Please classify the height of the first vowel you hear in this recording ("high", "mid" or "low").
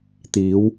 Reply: high